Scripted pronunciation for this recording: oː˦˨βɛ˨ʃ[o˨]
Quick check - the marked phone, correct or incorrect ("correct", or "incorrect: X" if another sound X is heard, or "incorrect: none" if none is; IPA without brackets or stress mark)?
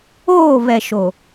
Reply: correct